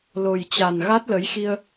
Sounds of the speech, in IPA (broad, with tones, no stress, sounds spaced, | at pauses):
l o˨˩ j t͡ɕ a˨˩ n ɣ a˦˥ t̚ l ə˨˦ j x i˧ ə̯